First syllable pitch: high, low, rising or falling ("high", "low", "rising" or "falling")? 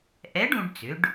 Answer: rising